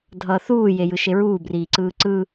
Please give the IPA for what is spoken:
dʱ ʌː θ uː j e j ɯ ʃ e ɹ uː b r iː ǀ ɯː ǀ ɯ

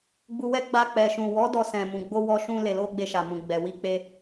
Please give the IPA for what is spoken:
ɡ͡b u˧ w ɛ˦ ɡ͡b a˧ k͡p ɛ˨ ʃ ũ˨ w ɔ˨˦ d ɔ˧ s ɛ̃˨ m ũ˨ ɡ͡b o˧ w ɔ˧ ʃ ũ˧ l e˨ l o˧ ɡ͡b e˧ ʃ a˨ m ũ˨ ɡ͡b ɛ˨ w i˧ k͡p e˧

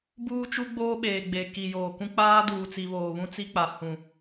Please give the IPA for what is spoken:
b uː˦ t͡ʃ u˦ ɡ͡b oː˦ ɓ eː˨ ɡ͡b e˨ k i˨ j oː˨ k ũ˦ k͡p aː˦ d uː˨ t͡s i˨ β oː˨ β ũ˦ t͡s i˦ k͡p a˨ h ũ˨

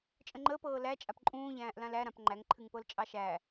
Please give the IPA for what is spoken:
t͡ʃʼ ə̃ ŋ͡ǃ əː p ɤː l æ t͡ʃʼ a p ǃʼ ũː ʎ æ̃ː ʔ l ã l æ ɾ ã p ŋ͡ǃ æ ŋ ǃʰ ɨ ŋ p ɤ l t͡ʃʼ ɑ ʃ æ

